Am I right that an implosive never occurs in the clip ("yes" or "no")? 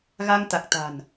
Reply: yes